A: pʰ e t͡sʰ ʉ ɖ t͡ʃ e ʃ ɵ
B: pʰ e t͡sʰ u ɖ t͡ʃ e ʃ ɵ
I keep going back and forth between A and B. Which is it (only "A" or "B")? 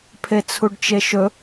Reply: B